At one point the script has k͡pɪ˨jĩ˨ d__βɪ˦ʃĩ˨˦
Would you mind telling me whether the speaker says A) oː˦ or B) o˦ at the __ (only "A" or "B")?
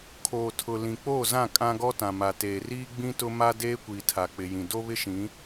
B